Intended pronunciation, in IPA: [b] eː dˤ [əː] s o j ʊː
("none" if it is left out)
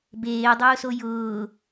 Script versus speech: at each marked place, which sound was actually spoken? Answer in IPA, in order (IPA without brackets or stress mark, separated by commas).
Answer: b, ʊː